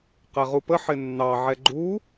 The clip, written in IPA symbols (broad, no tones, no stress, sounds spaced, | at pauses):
q ɛ ʁ u p ə ħ ɪ nː ɑ ʕ ɛ ɡ͡ǃ u